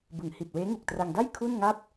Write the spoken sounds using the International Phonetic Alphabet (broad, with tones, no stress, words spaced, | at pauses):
bɯ˩˦ŋhi˨˩t̚ weː˦˥ŋu˨˩k̚tra˧ŋda˥˩j kʰu˥˩nŋa˥˩p̚